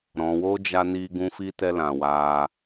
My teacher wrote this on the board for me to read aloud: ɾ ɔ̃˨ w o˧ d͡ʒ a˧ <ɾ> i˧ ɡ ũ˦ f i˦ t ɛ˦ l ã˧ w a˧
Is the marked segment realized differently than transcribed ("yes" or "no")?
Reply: yes